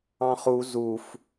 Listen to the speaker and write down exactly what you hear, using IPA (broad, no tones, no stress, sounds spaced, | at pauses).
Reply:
ɑ̃ χ u z u f